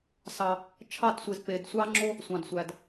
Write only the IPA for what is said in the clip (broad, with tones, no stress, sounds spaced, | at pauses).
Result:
s ɑ˩ | t͡ʃʰ ɑ˥˩ t sʷ e˩ z p e˩ d sʷ ɑ˥ ŋ͡ǁ o˥ | sʷ ɑ̃˩ d sʷ æ˩ d